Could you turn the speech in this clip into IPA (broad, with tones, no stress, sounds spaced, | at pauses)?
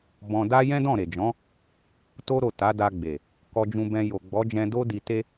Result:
b ɔ̃˧ d a˦ j ɛ̃˦ d ɔ̃˦˨ ɾ e˨ d͡ʒ ɔ̃˨˦ | t o˦ ɾ o˦˨ t a˨˦ d a˧ ɡ͡b e˨ | k ɔ˧ d͡ʒ ũ˧ b ɛ̃˧ j o˨ ɡ͡b ɔ˨˦ d͡ʒ ɛ̃˧ d o˦ d i˧ t e˦